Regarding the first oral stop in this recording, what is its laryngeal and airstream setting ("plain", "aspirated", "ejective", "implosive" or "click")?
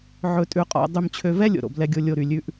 ejective